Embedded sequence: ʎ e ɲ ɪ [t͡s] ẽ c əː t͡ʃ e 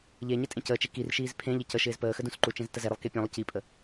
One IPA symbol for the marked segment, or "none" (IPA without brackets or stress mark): tʼ